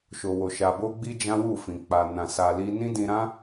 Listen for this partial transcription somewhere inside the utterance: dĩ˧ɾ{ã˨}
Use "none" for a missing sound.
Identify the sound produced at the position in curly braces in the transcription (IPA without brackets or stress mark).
ã˦